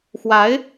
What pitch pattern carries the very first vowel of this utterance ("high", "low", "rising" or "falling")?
rising